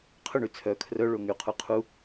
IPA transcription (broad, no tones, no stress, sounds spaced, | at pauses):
qʰ ɵ ɳ y t͡sʰ œ kʰ r œ ɭ o ŋ y qʰ u qʰ u